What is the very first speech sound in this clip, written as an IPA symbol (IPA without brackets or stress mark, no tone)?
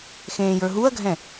x